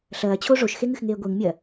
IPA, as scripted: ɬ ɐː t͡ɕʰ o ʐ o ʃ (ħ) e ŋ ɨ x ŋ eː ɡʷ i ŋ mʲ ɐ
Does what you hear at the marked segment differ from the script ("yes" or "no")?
yes